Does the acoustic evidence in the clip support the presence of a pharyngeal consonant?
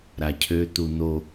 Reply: no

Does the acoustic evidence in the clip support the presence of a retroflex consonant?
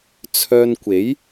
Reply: no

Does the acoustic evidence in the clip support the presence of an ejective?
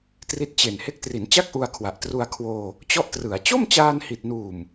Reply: no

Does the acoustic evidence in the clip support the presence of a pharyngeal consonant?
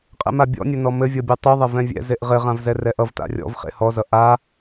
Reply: no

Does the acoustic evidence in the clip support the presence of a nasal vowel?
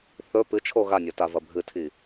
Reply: no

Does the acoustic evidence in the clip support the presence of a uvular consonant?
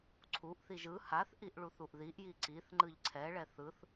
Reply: no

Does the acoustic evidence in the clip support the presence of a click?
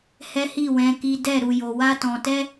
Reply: no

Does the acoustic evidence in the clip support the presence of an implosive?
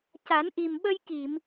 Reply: yes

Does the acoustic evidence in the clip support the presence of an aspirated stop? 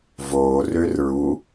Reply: no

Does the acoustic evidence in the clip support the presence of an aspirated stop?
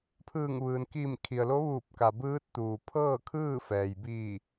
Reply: yes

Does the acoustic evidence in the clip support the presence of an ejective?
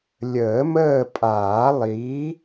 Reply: yes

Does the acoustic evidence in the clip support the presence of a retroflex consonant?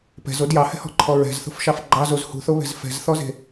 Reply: no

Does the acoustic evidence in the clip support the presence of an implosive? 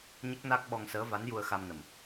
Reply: yes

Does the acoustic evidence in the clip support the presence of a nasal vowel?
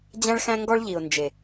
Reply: yes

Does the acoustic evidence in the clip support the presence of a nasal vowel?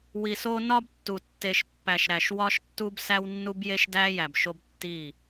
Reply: no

